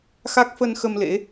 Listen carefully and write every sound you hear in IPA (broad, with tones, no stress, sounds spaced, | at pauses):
x a˦˥ k̚ f ə˧ n x ə˧ m l ḛ˧˥